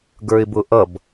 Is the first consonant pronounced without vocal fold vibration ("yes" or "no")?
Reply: no